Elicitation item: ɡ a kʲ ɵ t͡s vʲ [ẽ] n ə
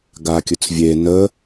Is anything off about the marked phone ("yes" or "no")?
yes